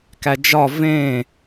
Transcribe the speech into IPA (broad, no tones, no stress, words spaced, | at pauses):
kæd͡ʒɒ vẽ